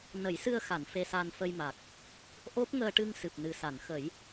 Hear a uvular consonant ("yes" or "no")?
no